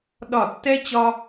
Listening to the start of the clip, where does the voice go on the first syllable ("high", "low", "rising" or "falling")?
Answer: falling